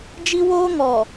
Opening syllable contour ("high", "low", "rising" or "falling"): high